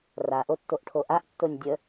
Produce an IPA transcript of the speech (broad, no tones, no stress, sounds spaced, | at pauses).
r a ʔ o tː o ʔ ʈʰ o ʔ a ʔ tː o nʲ dʲ ə